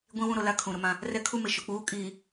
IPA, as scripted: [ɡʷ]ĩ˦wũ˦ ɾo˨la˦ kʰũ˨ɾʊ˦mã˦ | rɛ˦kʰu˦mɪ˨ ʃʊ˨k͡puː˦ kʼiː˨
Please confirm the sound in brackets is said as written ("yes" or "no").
yes